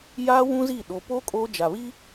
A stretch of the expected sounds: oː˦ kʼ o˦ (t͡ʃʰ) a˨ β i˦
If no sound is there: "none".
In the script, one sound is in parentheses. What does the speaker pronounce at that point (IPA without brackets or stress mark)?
d͡ʒ